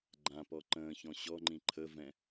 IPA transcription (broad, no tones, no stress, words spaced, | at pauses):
ɡ͡ǃãpɔ ǃə̃ːçɔ̃ ɕɔŋ͡ǃĩ ǃʰəvɛ̃